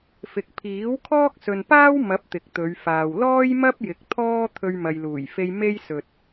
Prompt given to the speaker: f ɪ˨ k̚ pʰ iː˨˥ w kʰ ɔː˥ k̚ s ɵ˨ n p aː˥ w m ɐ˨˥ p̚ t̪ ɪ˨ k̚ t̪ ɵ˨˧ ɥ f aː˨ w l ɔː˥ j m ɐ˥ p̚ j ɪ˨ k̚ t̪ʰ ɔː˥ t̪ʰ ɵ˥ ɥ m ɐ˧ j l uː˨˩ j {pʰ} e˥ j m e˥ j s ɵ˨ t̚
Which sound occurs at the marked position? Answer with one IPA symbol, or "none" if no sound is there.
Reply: f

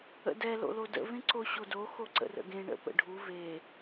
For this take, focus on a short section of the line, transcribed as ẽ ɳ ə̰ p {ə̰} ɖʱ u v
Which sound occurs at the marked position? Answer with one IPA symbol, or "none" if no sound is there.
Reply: ə̰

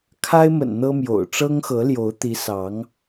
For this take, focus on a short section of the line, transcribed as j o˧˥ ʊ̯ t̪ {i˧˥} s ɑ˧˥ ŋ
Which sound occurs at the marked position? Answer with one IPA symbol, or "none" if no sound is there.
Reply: i˧˥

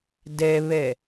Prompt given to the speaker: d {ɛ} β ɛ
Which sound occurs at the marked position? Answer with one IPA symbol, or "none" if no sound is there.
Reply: ɛ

